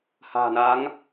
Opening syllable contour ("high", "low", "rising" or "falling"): low